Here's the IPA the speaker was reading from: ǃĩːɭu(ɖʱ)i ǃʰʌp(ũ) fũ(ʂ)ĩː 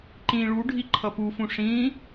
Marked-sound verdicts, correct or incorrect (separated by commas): correct, incorrect, correct